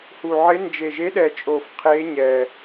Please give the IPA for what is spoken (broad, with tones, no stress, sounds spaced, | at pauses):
h u˨˩ ʕ ɪ˧˥ n d͡ʒ e˨˩ ʒ e˧˥ ɗ ɛ˨˩ t͡ʃʼ o˨˩ f qʰ e˧˥ ɲ ɛ˨˩